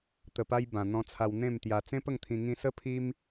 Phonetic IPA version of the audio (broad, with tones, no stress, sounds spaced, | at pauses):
t̪ ə˨˩ p a˧ j b ã˨˩ n̪ ɔ̃˧ t͡sʰ a˧ w n̪ ẽ˥˧ m t̪ j a˧ t͡s ẽ˦ p ə˥˧ ŋ t̪ʰ ĩ˧ ŋ ĩ˦ s ə˦ pʰ i˦ m